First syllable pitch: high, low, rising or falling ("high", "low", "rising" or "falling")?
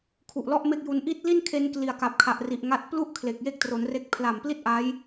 low